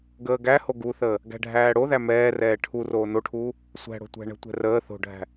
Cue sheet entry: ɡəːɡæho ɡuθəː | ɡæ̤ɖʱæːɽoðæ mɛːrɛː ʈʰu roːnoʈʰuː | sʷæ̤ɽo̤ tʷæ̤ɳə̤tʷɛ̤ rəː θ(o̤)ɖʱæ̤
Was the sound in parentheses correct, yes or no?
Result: yes